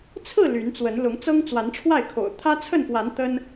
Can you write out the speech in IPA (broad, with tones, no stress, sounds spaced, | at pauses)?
t͡sʰ ɹ̩˥˨ l y˨˦ n t͡s w ə˨˦ n l ʊ˨˦ ŋ t͡s ɤ˦ ŋ t͡s w a˨˦ n ʈ͡ʂʰ w a˥˨ ɪ̯ kʰ o̰˨˩ ʊ̯ t̪ʰ ä˦ t͡sʰ ə˥˨ n p w a˨˦ n t̪ ə˦ n